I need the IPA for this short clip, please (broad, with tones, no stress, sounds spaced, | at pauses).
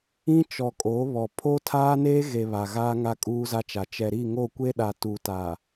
ĩ˦ t͡ʃ ɔ˨ kʼ o˨˦ β ɔ˨ pʰ o˦ tʰ aː˦ n eː˦ ɣ e˨ β a˨ ɣ aː˦ ŋ a˦ kʼ uː˦ z a˦ t͡ʃ a˨ t͡ʃ ɛ˨ ɾ i˦˨ ŋ o˦˨ kʷ e˦ ɗ a˨ t uː˨ t aː˨